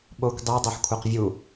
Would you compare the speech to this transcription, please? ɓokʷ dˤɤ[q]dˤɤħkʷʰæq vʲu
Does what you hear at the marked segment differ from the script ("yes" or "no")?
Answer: yes